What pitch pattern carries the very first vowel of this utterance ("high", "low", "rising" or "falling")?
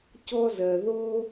high